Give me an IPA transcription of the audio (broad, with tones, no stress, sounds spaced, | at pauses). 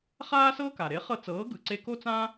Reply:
χ aː˥ s ɤː˥ k a˩ ɾ e˩˥ χ ɤ˧ t͡s ɤː˩˥ ɡ ɯ˩ ǀ e˧ k o˥ t͡s ã˥